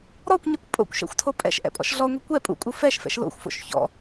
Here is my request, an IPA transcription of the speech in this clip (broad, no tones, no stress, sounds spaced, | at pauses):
ɾ ɔ kʷ ɲ ɛ kʷ pʼ o̰ kʷ ʃ ɛ̰ xʷ tʰ o pʼ ɛ̰ ʃ ʔ ɛ̰ pʼ ɔ̰ ʃ ɮ ɔ ŋʷ ɛ kʷ ɛ pʼ ṵ kʼ u f ɛ ʃ f ɛ̰ ʃ l o̰ xʷ f o̰ ʃ ç ɔ̰